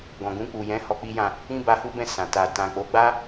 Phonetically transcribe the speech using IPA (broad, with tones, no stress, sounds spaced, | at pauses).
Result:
ɡ ɔ̃˨ ɡ ũ˧ k͡p u˨ j ɛ̃˨˦ h ɔ˧ k͡p i˦ j ã˦˨ | ĩ˦ b a˧ h u˦ b ɛ̃˦˨ s ã˨ t a˨ t ã˨ k͡p o˨˦ ɡ͡b a˦